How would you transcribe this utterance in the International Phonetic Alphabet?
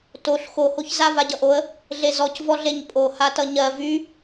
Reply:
t o ɬ x o h o ç z a v a ɟ ʌ ʔ o ə̯ | ɮ e z ɔ c v ɔ ɮ e ɲ pʼ o h a t ʌ ɲ ɜ v y

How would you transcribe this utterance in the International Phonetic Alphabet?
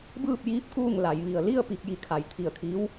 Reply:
b ɯː˥˨ p̚ j iː˧˥ p̚ k uː˥˨ ŋ l a˩˧ j ʋ i˩ ə̯ l i˥˨ ə̯ p i˧ k̚ j i˧ kʰ a˩˧ j t̪ʰ i˧˩ ə̯ kʰ i˧˥ w

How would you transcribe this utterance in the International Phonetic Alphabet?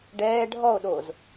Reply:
ɖ ɛː ɖʱ ɔ o̯ ɗ oː z

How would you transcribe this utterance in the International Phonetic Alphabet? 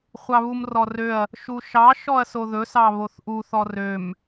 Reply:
χʷ ɑ β u m r ɔ r ø ɐ̯ | ʃ u ʃ ɑ ʃ ɔ ɐ̯ s o ð ɵ s ɑ β o θ ʔ u θ ɔ r ø m

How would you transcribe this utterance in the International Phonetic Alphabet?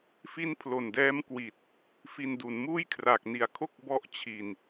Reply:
f i˦˥ n pʰ l o˨˩ n d ɛː˦˥ m k w i˨˩ t̚ | f i˧ n d u˩˦ n m uː˥˩ j kʰ r a˨˩ k̚ n i˨˩ a̯ kʰ o˥˩ k̚ b ɔ˥˩ ʔ t͡ɕʰ i˨˩ n

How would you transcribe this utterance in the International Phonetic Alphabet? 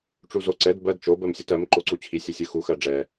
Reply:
ʈ͡ʂ u z o ǀ ɛ d b ɜ d t͡ʃ o b ɜ m sʲ o t ɜ m ǃ o ǀ u t͡ɕʰ i sʲ ɛ sʲ ɯ x u x ɜ ɖ͡ʐ ɛ

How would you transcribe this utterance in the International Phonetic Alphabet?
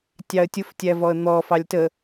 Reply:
tʲ ɑ ə̯ tʲ ʊ f tʲ æ v ɔ ə̯ n̪ ɔ f ɑ lʲ t ə

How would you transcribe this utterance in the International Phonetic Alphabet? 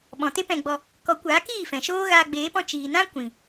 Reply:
ɓ ɔ̃˨ t e˦ p ɛ̃˧ ɡ͡b ɔ˧ | k ɔ˨˦ kʷ aː˨˦ k iː˦˨ f ɛ̃˨ ʃ oː˦ ɣ aː˧ ɡ͡b eː˨˦ p ɔ̃˦˨ t͡ʃ iː˨ n ã˦ kʷ ĩ˨

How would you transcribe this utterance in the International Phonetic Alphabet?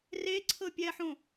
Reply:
r e ǀʰ ɤ pʲ ɛ ħ õ

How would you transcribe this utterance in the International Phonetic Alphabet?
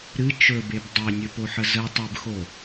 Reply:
ɾ ɨ t͡ʃ ɵ b e b dˤ e nʲ ɵ p o ħ ə z ə tˤ ɨ b x o

